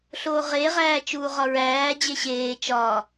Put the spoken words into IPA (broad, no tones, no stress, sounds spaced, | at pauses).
ɬ oː ʁ e ʁ æː t͡ʃ uː ʁ ɒ ɹ æː d͡ʑ e ɕ eː t͡ʃ ɒ